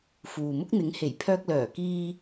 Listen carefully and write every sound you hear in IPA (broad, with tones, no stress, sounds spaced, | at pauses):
f uː˨ m ʊ˥ k̚ n̪ ɪ˨˥ ŋ h e˨˩ j pʰ œː˧ k̚ l œː˨˩ k iː˧